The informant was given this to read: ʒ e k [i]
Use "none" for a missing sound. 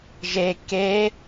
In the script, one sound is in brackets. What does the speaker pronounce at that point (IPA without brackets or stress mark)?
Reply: e